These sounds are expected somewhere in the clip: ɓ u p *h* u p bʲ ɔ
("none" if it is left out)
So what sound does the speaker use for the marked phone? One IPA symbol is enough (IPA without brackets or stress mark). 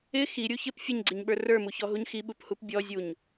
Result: h